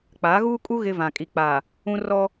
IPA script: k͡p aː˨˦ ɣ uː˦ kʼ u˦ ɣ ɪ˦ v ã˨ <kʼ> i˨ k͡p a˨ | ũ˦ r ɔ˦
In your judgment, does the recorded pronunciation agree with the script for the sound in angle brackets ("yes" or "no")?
yes